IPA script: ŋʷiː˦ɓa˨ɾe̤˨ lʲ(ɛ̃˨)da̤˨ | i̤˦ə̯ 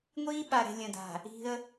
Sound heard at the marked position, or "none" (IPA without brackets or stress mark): ə̃˨